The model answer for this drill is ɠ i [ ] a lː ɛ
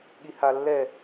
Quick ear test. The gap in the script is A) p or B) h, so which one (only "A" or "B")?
B